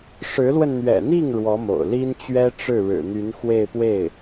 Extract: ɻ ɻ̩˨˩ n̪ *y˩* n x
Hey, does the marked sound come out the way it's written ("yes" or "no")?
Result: no